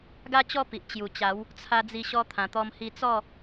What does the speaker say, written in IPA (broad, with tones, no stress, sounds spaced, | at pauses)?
ɡ a˦ t͡ɕ ɔ˥˧ p i˨ ʔ t͡ɕ j u˨˩ t͡ɕ a˨˦ w | t͡sʰ a˧ d͡z i˧ ɕ ɔ˧ t̪ʰ ã˨˩ t̪ ɔ˧ m h i˧ t͡s ɔ˥˧